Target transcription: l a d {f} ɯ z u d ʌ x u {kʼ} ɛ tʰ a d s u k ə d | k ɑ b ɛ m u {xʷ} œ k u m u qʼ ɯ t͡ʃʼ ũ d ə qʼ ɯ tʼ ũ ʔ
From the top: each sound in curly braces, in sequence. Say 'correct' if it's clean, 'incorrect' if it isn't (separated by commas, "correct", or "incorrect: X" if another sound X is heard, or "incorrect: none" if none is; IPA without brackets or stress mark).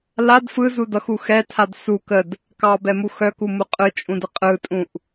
correct, incorrect: x, incorrect: x